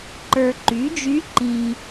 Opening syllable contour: low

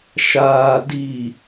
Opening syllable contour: low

